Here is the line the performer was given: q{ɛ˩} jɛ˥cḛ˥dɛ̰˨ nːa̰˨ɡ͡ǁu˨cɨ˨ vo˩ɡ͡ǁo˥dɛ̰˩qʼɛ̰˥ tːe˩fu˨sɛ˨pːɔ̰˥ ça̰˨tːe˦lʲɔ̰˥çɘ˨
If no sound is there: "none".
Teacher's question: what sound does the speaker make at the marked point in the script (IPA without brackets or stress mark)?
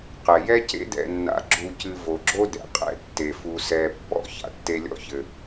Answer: ɛ˩